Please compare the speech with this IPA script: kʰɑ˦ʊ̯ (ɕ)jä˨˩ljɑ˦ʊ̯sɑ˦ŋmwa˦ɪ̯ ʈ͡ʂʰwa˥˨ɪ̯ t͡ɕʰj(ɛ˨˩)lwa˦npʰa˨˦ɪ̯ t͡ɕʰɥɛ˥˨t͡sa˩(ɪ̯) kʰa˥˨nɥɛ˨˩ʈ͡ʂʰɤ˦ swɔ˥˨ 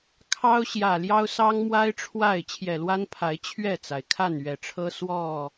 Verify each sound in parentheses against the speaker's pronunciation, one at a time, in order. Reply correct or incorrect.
correct, correct, correct

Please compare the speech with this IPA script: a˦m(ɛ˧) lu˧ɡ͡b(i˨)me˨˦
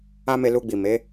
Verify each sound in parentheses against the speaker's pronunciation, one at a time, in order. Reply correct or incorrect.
incorrect: e˧, correct

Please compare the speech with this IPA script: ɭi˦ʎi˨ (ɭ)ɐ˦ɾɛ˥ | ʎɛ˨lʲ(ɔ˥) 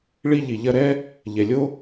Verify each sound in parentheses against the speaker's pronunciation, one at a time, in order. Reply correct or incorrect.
incorrect: ʎ, incorrect: o˥

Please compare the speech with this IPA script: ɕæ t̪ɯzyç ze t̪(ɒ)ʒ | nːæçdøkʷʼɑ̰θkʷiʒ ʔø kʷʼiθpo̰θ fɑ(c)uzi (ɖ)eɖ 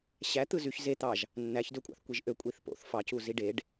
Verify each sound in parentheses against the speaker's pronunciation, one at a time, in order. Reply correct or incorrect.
incorrect: ɑ, correct, correct

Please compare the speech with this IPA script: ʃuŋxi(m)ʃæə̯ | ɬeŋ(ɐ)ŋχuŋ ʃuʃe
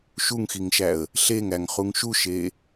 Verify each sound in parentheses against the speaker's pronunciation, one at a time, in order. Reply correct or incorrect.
incorrect: ŋ, incorrect: æ

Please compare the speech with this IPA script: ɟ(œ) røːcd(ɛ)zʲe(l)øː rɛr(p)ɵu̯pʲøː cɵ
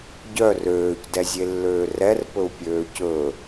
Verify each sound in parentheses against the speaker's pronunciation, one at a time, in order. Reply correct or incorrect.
correct, correct, incorrect: lː, correct

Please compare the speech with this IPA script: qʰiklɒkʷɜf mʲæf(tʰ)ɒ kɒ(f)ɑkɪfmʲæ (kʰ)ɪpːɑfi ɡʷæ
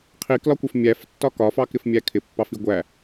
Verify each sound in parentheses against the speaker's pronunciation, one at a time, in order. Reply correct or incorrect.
incorrect: tː, correct, correct

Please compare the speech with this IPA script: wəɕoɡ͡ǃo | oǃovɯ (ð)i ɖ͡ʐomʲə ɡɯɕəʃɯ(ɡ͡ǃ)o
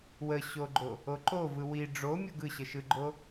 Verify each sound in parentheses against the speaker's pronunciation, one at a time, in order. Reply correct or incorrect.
incorrect: w, correct

